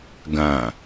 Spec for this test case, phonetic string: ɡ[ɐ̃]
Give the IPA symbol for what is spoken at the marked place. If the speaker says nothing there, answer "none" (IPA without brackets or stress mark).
ɐ̃